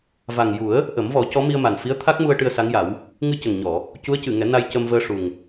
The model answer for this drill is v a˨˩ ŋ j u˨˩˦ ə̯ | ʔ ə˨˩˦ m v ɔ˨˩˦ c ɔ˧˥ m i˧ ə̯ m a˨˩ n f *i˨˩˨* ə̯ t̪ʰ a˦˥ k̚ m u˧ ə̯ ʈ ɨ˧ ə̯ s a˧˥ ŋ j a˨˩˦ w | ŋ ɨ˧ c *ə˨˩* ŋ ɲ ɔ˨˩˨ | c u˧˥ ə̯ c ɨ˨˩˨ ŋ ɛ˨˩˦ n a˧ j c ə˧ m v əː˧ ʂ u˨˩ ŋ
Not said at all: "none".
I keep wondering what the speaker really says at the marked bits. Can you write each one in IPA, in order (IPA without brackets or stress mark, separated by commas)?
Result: i˧˥, ə˨˩